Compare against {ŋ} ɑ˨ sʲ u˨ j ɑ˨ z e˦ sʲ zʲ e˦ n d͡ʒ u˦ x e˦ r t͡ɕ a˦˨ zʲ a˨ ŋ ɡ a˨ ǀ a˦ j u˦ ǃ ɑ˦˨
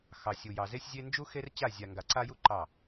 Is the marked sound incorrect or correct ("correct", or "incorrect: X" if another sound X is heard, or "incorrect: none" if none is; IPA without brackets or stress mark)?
incorrect: x